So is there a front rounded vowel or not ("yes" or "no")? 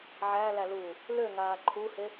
yes